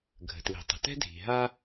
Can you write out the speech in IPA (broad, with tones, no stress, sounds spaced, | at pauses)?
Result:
ɡʱ ə̤˩ t l i̤˩ tˤ ə̤˩ t ɛ̤˥ dʱ i̤˩ ɦ a˥